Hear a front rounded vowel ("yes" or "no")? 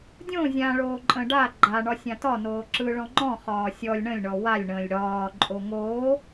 no